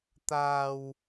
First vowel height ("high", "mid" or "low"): low